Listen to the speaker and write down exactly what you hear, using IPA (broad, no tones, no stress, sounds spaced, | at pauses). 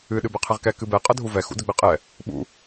ɨ ɗ ɨ b ɛ qʰ ɘ ʁ k ɛ k ɨ b ɛ qʼ ɐ dʱ u v ɛ x ṵ d ɘ ɡ͡b ɘ qʼ ɛ | ɓ ṵ